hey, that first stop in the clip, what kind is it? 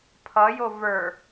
aspirated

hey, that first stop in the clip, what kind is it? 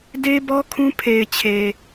plain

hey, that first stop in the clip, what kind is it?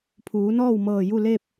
aspirated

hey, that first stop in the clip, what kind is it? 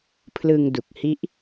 aspirated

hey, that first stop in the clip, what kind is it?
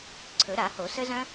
click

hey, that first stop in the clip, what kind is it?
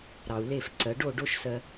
click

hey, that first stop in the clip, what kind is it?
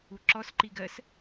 click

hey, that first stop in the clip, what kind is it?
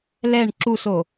click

